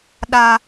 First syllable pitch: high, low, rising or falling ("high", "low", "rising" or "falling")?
low